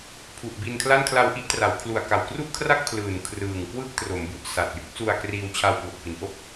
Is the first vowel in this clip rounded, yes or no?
yes